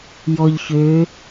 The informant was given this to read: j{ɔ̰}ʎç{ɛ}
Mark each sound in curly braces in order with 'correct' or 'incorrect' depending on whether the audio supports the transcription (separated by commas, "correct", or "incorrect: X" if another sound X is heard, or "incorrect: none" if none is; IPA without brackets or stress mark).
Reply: incorrect: ɔ, incorrect: ø